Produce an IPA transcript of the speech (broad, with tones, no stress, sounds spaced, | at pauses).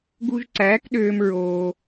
ɡ u˧ ʒ ǀ æː˨˦ k ɗ øː˧ m ɹ oː˧